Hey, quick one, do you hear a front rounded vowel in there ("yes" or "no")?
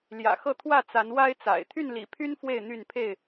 yes